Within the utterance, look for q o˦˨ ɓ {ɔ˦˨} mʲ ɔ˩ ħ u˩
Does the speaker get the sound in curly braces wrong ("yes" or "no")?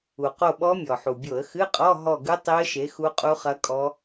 yes